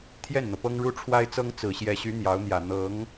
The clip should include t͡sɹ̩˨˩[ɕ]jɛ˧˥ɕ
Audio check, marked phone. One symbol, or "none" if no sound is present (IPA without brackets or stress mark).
ɕ